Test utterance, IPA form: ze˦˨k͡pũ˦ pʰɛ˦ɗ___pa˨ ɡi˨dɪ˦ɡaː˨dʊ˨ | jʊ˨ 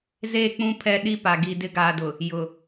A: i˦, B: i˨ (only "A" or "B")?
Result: A